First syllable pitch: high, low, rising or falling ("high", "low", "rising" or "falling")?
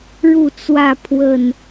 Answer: falling